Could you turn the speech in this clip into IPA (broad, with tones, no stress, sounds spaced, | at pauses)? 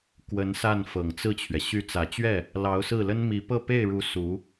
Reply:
k w ə˧˥ n s a˥˩ n f ɤ˨˩ ŋ t͡s ɹ̩˥˩ t͡ɕʰ ɥ ɛ˩ ɕ y˥˩ t͡s ä˨˩ t͡ɕ ɥ ɛ˥˩ | l ɑ˧˥ ʊ̯ s ɹ̩˥˩ l ə˥ n m i˧˥ p ɤ˥˧ p e˥˩ ɪ̯ ɻ u˧˥ s u˧˥